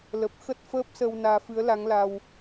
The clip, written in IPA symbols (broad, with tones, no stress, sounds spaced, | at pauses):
l ə˨˩ p̚ x ə˦˥ t̚ f əː˦˥ p̚ s ə˧ w n aː˧ f ɨ˨˦ ə̯ l a˨˦ ŋ l a˧ w